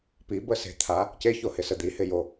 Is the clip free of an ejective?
yes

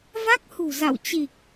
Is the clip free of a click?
yes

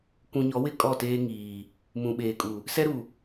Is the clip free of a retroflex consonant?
yes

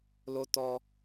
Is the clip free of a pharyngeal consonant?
yes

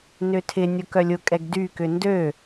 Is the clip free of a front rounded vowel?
no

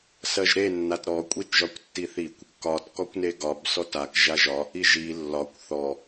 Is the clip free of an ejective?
no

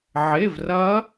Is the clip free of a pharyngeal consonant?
no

